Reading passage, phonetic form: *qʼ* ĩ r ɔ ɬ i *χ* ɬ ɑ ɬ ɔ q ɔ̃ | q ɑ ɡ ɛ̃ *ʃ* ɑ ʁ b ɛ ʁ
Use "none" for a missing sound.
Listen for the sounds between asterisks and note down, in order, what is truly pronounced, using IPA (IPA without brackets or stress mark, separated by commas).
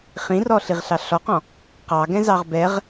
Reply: χ, ʁ, z